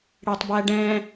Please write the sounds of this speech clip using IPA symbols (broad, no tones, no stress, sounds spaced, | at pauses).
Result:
ɽ e tˤ b æ ɖ ɛ̃